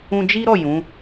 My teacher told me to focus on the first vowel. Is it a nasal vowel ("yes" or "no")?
yes